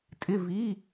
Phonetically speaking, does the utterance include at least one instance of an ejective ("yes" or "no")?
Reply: yes